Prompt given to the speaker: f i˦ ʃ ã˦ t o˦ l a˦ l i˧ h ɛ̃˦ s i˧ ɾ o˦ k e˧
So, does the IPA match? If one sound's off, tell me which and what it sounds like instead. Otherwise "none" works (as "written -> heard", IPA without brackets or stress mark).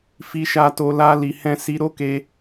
ã˦ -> a˦